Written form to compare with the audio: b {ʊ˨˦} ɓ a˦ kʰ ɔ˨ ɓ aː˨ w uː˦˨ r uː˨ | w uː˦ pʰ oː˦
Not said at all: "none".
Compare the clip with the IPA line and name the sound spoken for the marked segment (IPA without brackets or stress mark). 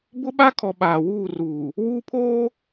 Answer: ʊ˦